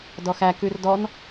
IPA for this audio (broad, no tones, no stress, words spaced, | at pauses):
dɔxæ kʉrdɔn